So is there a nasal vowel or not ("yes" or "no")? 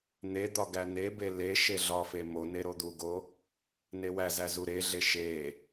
no